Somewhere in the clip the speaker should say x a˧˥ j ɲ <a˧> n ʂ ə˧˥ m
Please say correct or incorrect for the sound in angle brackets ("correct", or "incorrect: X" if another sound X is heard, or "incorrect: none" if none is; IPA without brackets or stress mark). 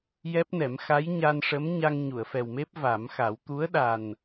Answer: correct